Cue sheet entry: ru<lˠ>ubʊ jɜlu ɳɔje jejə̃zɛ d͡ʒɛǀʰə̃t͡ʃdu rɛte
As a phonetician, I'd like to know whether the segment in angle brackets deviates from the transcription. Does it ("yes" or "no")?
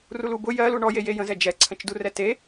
yes